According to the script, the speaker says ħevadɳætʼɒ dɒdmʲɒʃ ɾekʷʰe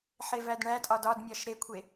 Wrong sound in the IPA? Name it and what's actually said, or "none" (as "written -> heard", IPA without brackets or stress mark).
a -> æ